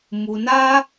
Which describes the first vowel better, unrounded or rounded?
rounded